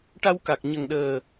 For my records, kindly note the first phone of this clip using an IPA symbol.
ʈ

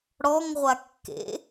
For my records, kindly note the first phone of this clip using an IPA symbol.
ɽ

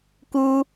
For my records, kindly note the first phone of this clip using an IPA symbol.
k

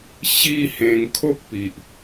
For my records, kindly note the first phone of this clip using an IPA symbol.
ɕ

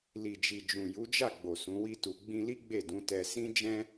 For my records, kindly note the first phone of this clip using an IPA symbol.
l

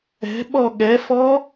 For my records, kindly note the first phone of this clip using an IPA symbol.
ɛ̤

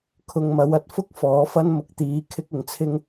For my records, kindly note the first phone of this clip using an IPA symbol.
kʰ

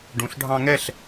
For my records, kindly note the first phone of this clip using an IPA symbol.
ɖ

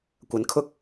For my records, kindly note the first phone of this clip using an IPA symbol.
kʷ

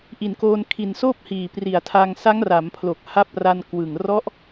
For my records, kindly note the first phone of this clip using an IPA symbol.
ʔ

